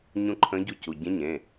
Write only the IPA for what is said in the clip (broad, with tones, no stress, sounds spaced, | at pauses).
ɲ ũ˧˥ ǃʰ ə̃˧˥ ɟ u˧˥ c u˩˧˩ ɟ ẽ˧˥ ɲ ẽ˩˧˩